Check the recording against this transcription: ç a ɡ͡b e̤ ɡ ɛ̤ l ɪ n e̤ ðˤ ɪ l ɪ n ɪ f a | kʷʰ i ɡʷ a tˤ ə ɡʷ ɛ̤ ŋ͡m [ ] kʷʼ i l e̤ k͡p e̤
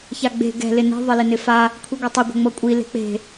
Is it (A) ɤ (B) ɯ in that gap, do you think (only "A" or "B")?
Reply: A